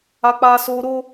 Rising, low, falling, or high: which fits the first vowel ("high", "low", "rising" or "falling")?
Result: high